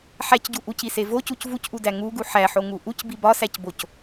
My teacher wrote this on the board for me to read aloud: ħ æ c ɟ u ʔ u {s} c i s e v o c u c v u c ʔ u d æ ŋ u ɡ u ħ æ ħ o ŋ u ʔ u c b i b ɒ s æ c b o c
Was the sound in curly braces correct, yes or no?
no